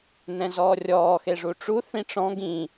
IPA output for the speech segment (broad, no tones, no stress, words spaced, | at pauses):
nɛ̃zɔːrʲɔː xeʐuʈ͡ʂu θĩʈ͡ʂɔ̃ ɡĩ